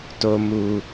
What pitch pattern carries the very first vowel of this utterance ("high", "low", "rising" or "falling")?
low